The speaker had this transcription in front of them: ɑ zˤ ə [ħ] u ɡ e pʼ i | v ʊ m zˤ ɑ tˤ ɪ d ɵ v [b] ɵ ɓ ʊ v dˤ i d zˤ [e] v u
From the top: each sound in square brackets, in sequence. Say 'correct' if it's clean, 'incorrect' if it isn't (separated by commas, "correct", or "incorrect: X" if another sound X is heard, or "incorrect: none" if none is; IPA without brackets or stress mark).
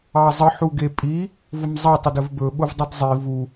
correct, correct, incorrect: i